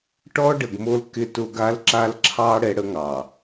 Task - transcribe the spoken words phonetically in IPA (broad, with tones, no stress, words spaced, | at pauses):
ʈɔ˦ɖə˨ɡmo˦l kɪ˦tʊ˦ɡa˦l ǁa˦lǁʰɑ˦ ɽɛ˦ɽə˦ŋɑ˨